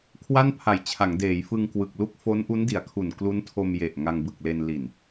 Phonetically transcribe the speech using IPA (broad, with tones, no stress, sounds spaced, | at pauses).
kʰ w a˥˩ n pʰ a˨˩ j t͡ɕʰ a˩˦ ŋ d eː˩˦ j f ɯ˧ ŋ k w ɯ˨˩ k̚ l u˥˩ k̚ f o˦˥ n ʔ u˦˥ n d i˩˦ a̯ kʰ u˨˩ n k l u˦˥ n tʰ o˧ m j e˨˩ ʔ ŋ a˧ ŋ b ɯ˨˩ k̚ l e˧ n l i˨˩ n